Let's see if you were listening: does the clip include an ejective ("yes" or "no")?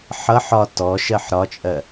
yes